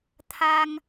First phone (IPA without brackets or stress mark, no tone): t̪ʰ